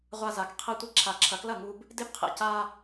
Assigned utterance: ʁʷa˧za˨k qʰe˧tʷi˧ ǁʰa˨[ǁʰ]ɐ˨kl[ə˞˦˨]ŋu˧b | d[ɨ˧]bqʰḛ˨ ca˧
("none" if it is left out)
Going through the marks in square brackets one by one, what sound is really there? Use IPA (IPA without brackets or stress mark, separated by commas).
ǁʰ, ɐ˦˨, e˧